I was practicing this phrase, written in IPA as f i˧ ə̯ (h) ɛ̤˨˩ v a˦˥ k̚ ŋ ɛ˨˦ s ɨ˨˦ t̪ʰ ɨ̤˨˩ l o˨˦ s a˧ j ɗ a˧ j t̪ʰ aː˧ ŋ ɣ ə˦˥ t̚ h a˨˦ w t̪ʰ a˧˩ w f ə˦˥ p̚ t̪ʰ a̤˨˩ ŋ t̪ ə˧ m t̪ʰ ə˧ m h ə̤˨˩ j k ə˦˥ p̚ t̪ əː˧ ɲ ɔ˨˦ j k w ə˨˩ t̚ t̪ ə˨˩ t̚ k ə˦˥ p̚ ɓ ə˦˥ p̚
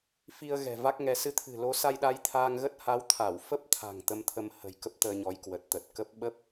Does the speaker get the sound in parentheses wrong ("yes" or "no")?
yes